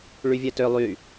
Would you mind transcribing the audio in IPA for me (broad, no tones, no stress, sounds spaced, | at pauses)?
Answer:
ɭ y vʲ ɛ t ø lˠ y